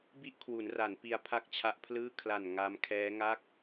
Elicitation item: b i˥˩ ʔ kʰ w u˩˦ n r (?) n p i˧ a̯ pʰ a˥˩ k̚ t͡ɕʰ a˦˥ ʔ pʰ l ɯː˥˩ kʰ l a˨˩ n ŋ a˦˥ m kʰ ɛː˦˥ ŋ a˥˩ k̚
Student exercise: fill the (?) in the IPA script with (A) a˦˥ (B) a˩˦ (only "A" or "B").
B